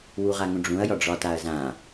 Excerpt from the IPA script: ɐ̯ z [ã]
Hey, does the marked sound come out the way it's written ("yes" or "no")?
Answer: yes